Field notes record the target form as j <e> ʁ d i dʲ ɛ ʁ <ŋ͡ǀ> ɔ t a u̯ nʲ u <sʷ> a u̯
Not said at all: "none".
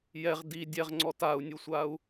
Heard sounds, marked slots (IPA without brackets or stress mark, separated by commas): ɛ, ŋ͡ǀ, sʷ